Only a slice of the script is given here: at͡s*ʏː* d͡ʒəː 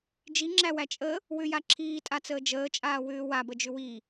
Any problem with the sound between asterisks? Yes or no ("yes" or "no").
yes